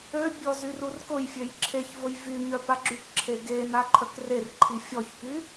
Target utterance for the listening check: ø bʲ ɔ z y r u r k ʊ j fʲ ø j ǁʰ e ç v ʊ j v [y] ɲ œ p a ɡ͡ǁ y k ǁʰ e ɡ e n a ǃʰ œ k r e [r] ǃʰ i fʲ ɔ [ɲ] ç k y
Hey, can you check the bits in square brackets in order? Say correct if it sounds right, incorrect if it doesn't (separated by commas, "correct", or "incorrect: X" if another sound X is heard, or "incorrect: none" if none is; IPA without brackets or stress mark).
correct, correct, incorrect: none